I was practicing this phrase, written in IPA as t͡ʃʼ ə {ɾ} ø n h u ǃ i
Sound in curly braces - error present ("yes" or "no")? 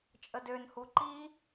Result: yes